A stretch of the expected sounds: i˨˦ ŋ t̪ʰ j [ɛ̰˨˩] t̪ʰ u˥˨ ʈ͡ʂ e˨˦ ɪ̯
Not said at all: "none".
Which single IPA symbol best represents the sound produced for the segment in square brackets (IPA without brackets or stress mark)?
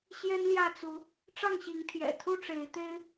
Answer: ɛ̰˨˩